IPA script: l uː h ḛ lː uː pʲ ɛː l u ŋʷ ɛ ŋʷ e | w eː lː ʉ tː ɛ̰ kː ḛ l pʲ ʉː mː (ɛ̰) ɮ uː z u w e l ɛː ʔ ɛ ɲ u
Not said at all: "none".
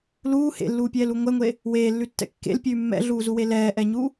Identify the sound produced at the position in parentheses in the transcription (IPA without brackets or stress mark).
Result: ɛ̰